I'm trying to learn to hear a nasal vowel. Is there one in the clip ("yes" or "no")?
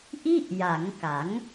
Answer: no